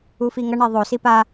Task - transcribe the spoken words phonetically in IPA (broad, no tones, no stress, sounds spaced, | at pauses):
u f i ŋ ʌ ɳ e ðˤ o s i p a